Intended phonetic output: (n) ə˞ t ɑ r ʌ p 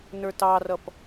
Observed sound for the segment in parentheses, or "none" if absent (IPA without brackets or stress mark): n